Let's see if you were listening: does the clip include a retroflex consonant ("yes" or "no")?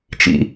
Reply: no